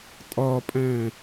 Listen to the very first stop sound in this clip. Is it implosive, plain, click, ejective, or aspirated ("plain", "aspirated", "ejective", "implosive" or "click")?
ejective